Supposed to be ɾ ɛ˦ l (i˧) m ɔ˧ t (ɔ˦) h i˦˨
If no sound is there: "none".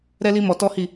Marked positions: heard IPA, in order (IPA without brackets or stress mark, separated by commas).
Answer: i˦, ɔ˦